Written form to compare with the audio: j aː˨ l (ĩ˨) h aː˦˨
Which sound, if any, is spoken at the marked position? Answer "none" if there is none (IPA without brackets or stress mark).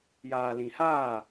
ĩ˨